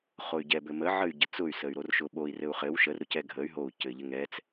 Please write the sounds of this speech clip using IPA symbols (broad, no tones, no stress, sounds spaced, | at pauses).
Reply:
χ o y̯ ɟ ɛ b ɘ m ə ʕ ə y̯ ɟ ə t͡s ʊ y̯ s ə y̯ ɾ o r ʃ ʊ ɓ o i̯ r ɘ u̯ χ ɘ w ʃ ə r ɾ ʊ c ɛ ɡʱ ə y̯ ɦ o u̯ c ɘ ʎ ɘ ŋ ɛ t͡s